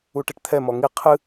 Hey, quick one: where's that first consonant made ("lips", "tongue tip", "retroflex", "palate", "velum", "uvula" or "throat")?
retroflex